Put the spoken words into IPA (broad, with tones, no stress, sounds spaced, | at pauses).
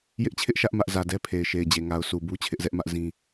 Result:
j ɪ˦ ʔ t͡ɕʰ ɪ˦ ʔ ʃ ä˦ ʔ m ä˦ ʔ z ä˨ d ɛ˦ pʰ e˨ ɪ̯ ʃ e˨ ɪ̯ d͡ʑ e˨ ŋ a˨ ʊ̯ sʰ u˨ b u˦ t͡ɕʰ ɪ˦ ʔ z ɛ˦ ʔ m ä˦ ʔ z ĩ˦